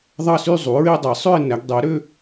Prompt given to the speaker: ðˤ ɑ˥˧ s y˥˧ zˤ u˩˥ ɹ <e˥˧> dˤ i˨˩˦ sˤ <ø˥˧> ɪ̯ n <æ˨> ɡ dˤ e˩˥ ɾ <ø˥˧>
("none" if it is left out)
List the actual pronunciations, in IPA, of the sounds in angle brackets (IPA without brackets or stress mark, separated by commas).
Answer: e˥˧, ø˥˧, æ˩˥, ø˥˧